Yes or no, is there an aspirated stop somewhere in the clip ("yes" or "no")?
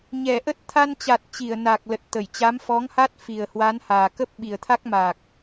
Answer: yes